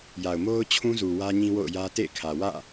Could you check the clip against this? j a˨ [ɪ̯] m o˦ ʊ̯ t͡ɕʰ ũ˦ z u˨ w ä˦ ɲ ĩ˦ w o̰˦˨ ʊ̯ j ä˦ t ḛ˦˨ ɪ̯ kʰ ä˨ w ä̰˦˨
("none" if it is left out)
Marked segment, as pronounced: ʊ̯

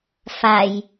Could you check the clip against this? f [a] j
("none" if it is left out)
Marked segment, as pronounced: a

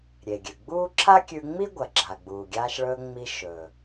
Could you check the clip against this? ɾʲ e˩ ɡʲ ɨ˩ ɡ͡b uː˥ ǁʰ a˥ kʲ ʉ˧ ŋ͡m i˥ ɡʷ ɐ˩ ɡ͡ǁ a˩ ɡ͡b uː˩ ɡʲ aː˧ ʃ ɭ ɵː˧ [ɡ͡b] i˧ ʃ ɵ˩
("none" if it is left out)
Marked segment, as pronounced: ŋ͡m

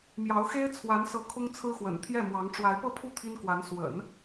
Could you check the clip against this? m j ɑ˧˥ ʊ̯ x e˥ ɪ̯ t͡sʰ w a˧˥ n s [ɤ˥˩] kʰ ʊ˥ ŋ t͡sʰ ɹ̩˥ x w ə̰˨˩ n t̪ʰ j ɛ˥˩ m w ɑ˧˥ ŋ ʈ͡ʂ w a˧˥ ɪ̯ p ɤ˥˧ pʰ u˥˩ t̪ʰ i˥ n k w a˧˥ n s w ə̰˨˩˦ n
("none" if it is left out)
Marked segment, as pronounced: ɤ˧˥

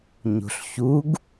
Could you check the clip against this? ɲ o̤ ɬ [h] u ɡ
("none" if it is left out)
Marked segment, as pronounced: ç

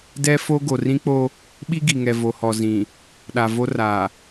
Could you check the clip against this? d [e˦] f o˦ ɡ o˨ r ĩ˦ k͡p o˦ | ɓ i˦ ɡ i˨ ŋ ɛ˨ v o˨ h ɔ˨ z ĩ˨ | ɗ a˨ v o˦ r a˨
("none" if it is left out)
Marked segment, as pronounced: ɛ˦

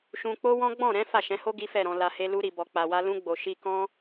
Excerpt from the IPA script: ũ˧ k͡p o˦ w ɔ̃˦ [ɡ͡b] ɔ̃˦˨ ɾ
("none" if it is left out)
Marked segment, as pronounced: ɡ͡b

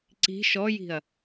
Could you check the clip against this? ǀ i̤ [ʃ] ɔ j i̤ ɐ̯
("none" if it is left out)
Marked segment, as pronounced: ʃ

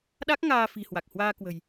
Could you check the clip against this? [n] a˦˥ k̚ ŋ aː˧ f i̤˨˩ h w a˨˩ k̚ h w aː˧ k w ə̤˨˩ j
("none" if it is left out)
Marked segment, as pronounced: ɗ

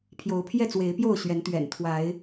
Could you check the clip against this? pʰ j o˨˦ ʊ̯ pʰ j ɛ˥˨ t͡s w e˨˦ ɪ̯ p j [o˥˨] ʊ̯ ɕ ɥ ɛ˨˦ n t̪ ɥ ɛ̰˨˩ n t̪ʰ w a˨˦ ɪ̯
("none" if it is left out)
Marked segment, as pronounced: o˥˨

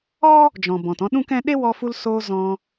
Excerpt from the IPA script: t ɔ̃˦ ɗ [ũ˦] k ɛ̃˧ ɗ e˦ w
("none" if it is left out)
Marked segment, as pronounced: ũ˦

